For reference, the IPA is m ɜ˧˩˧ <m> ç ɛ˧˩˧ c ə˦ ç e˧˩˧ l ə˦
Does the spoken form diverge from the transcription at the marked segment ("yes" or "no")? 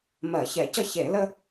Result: yes